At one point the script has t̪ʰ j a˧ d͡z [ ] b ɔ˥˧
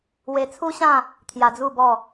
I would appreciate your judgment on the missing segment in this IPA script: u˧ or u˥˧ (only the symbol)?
u˥˧